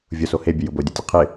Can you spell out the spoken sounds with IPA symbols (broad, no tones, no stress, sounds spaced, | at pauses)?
vʲ ʊ s o h e bʲ ə j ʊ b o dʲ ʊ tʲ ə qʰ ɪ